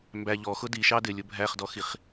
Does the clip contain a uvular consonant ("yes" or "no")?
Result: yes